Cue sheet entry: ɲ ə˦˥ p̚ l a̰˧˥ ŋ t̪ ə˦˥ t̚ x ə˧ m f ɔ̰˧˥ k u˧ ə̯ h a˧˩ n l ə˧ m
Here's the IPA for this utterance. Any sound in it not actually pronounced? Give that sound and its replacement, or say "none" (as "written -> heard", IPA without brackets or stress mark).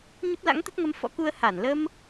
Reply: x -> ŋ